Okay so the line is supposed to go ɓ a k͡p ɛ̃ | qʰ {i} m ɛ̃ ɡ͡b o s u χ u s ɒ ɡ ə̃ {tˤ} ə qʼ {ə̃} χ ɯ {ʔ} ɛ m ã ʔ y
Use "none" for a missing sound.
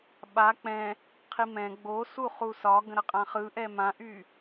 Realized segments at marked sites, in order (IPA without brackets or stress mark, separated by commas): i, ɾ, ã, ʔ